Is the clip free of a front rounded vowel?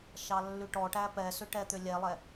no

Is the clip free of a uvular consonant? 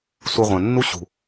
no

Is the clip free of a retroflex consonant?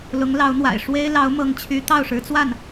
no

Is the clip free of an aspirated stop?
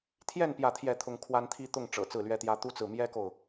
no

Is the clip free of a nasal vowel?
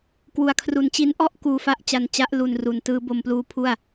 yes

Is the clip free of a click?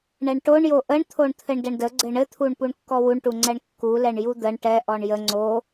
no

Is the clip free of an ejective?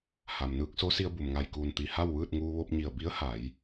yes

